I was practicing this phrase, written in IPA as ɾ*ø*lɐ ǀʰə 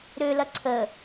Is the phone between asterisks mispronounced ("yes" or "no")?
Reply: no